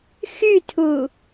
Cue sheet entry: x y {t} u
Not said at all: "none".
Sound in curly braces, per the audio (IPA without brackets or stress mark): tʰ